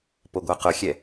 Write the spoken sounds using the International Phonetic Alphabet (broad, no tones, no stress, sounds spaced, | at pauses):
p o ɡʷ a q ʊ xʲ ɛ